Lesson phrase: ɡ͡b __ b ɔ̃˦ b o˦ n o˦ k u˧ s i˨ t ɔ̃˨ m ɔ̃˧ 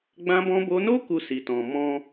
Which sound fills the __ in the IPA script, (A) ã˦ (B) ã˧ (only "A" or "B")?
A